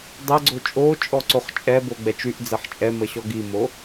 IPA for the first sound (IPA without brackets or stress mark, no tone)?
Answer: dˤ